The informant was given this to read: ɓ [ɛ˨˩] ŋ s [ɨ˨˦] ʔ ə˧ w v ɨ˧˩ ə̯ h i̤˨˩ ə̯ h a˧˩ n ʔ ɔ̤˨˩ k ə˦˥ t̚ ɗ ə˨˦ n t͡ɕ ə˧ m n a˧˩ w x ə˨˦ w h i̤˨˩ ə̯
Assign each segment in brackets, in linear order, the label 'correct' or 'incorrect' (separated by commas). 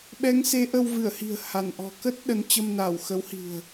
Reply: incorrect, incorrect